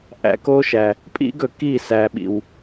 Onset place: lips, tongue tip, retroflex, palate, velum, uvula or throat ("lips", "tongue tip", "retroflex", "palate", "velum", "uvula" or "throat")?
throat